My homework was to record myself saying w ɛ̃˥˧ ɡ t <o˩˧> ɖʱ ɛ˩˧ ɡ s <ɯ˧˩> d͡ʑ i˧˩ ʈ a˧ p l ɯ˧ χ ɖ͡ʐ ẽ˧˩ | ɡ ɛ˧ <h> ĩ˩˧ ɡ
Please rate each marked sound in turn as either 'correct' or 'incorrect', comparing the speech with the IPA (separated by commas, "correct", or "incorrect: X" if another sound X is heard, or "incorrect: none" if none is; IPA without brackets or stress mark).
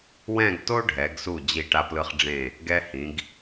incorrect: o˥, incorrect: u˧˩, correct